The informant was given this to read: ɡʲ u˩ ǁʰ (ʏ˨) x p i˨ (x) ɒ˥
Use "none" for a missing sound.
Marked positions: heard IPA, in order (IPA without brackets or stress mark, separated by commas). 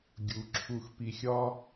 u˨, xʲ